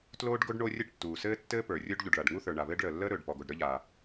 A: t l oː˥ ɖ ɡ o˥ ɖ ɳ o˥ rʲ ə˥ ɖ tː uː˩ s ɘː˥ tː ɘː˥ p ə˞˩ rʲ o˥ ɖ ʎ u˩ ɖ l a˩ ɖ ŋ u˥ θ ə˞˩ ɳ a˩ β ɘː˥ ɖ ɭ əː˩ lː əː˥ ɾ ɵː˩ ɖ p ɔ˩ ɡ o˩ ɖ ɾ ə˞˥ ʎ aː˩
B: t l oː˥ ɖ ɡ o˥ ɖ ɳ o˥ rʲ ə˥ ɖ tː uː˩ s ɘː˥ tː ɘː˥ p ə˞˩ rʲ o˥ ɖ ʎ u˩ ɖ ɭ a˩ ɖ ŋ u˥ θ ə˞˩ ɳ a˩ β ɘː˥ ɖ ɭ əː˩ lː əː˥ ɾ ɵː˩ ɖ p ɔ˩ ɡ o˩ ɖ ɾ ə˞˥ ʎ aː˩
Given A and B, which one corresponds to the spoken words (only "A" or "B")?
B